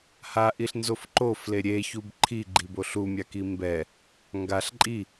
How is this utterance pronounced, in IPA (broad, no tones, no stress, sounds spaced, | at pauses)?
h a ʔ i ɬ n z o f ǃ o f l e ɾʲ e ç u b ǃʰ i ɡ͡ǃ i b o ɬ u mʲ a k i m b ɛ | ŋ ɡ a ɬ ǃʼ i